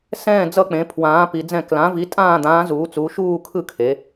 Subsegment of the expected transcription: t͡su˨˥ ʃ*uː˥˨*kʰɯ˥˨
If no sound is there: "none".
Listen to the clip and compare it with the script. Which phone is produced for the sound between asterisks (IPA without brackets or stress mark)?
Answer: uː˥˨